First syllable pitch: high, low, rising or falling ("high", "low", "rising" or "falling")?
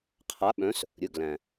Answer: rising